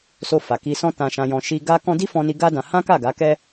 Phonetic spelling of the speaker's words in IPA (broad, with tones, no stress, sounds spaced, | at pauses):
s o˧ f a˨ k i˧ s ɔ̃˦ t ã˧ ʃ ã˧ j ɔ̃˧ ʃ i˧ ɡ a˦ k ɔ̃˦ d i˦ f ɔ̃˧ n i˧ ɡ a˦ d ã˧ h ã˦ k a˦˨ ɡ a˨˦ k ɛ˦